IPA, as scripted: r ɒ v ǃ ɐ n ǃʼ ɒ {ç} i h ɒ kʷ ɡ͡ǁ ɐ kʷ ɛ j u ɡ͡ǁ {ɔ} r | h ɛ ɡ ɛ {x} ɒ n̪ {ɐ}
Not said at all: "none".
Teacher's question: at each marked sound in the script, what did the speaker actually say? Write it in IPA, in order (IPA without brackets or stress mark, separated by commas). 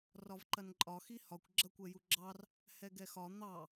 x, ɑ, x, ɑ